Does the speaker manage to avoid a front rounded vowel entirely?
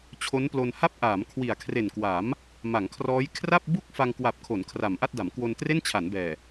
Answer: yes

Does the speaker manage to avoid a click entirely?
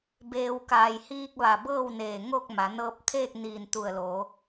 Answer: yes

